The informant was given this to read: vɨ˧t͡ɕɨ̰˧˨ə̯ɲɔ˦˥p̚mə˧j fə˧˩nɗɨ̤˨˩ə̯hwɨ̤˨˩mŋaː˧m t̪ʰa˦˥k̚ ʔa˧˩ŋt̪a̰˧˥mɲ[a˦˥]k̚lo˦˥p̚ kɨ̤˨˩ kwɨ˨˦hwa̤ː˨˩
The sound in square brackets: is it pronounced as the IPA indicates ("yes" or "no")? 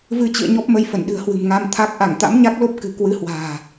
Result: yes